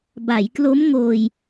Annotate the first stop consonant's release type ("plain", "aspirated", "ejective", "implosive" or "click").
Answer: plain